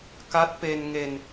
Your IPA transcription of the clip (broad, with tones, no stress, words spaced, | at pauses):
ka˦˥t̚pe˧n ŋe˧n